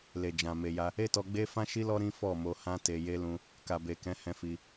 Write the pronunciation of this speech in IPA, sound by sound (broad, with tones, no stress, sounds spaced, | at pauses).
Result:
l e˨ d͡ʒ ã˨ m e˨ j a˧ | e˦ t ɔ˧ ɡ͡b e˦ f ã˦ ʃ i˦ l ɔ˦ ɾ ĩ˦ f ɔ˦˨ m o˧ h ã˦ t e˧ j e˦ l ũ˧ | k a˨ b e˨ k ɛ̃˨˦ h ɛ̃˧ f i˧